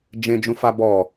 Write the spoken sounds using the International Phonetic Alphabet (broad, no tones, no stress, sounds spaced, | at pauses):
d͡ʒ ẽ d͡ʒ ũ f a b ɔ